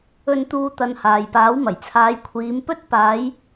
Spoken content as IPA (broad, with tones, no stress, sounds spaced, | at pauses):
ɵ˧ n t̪ uː˧ t̪ ɐ˧ n h aː˨ j p aː˨˥ w m ɐ˨˩ j t͡sʰ aː˨˧ j kʷʰ iː˨˧ m p ɵ˥ t̚ p aː˨˧ j